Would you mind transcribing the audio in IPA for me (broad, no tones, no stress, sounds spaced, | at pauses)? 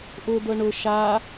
ʔ ʊ d̪ ɤ ɳ ʊ ʃ a